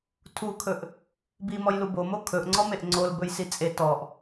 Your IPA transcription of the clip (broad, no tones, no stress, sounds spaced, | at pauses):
tʰ u kʰ ɵ ʔ | b i m ɔ j l u b o m o kʰ ɵ ʔ ŋ͡ǀ ɔ m e ʔ ŋ͡ǀ o l b ɵ j s i t͡sʼ e t ɔ ʔ